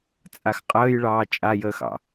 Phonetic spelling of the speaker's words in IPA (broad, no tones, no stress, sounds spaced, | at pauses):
t͡sʼ a x qʼ əː j ɭ ɑː t͡ʃʼ a j əː x ɑ̰